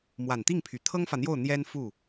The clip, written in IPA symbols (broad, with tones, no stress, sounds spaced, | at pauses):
m w a˨˩ n t̪ i˥˩ ŋ pʰ y˨˩ t̪ʰ ɤ˥ ŋ f ä˨ n̪ j o˥˩ ʊ̯ n̪ j ɛ˥ n f u˥˩